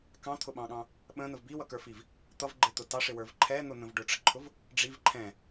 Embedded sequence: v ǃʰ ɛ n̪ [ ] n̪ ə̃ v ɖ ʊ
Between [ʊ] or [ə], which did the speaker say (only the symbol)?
ʊ